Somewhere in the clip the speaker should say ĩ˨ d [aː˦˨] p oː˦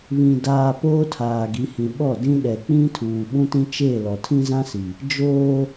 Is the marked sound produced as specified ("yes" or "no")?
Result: no